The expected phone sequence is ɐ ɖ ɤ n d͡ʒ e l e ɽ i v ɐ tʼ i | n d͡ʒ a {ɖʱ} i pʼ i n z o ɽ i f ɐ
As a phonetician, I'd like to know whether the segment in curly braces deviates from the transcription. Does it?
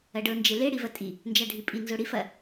no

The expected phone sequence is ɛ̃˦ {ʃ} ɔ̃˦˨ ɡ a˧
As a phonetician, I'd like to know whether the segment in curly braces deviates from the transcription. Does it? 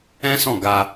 yes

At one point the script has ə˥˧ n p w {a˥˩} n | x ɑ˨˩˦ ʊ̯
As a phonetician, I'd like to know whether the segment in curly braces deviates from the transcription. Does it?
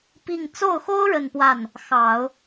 no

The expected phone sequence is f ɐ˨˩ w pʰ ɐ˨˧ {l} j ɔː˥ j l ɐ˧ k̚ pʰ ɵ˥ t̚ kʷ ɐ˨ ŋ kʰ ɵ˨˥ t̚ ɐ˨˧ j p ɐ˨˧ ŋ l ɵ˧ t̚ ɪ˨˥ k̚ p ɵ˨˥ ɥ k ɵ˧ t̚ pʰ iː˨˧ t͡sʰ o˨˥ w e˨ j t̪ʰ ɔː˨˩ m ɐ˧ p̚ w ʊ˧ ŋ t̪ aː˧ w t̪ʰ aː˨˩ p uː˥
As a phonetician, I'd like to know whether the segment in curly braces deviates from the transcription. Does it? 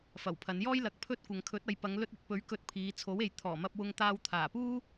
yes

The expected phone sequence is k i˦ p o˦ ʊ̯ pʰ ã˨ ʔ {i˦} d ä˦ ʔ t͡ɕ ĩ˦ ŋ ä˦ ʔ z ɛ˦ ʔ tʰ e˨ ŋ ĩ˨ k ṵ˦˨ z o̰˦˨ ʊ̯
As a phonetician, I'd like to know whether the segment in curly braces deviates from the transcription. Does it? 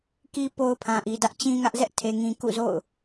yes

